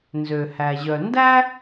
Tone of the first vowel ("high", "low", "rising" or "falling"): low